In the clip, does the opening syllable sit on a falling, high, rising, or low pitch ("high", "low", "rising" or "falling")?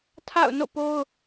falling